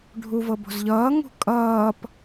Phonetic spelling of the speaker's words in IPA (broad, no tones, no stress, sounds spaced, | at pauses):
ɖʱ u v ɤ b o̤ z ʎ ʌː ŋ ṳ kʼ ʌː p